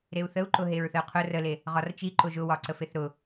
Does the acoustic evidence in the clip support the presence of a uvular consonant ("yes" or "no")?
yes